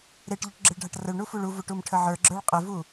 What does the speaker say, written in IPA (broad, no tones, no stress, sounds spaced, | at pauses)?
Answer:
ɾ e ʈ ʎ ʊ ʈ ɡ͡ǁ ɪ ɭ ɖʱ a ʈ r ə ɭ ɳ u f u ɭ u v u ʈ u m ʈʰ ə ʕ ə˞ ɡ͡ǁ ə˞ ɭ qʼ ɪ v u